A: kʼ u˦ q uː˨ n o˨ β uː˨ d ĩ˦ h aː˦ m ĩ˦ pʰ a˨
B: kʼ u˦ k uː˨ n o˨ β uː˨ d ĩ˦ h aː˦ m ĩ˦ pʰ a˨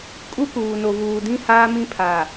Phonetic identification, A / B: B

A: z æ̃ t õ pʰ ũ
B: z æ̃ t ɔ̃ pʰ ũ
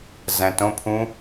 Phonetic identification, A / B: A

